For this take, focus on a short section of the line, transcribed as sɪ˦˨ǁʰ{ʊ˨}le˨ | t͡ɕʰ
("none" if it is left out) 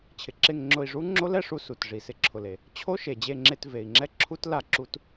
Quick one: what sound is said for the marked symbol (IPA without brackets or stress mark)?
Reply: ʊ˨